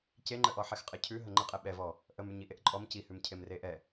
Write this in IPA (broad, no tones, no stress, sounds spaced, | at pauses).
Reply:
c e ŋ͡ǃ ə ʔ ɔ ħ ɛ x qʼ ə cʰ ʉ ɦ ə ŋ͡ǃ ə qʼ ɛ ɓ ɛ v ɔ | ʔ ə m ʉ ɲ i ʔ e ʔ ǃʼ ɔ m c i h ʉ m cʰ e m r e ʔ ɛ